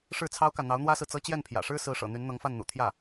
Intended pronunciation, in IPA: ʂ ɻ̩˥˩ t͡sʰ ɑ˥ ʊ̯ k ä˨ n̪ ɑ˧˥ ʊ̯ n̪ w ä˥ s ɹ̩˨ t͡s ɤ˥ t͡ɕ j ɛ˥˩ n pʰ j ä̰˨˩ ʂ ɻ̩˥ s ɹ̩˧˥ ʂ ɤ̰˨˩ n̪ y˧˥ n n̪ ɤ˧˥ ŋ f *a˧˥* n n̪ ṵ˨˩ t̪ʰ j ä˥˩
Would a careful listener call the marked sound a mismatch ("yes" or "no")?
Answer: yes